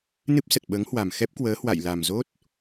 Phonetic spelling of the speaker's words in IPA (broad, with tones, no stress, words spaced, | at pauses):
nɨ˦˥p̚sə˨˩t̚ ɓəː˨˦ŋhwa˨˩m xɛ˦˥p̚kwəː˨˦ hwa̰˧˨jla˨˩mzo˦˥t̚